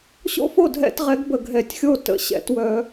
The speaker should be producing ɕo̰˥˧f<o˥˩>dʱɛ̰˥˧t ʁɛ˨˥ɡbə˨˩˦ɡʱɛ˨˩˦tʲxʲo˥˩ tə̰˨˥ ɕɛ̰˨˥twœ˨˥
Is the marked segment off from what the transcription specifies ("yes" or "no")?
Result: no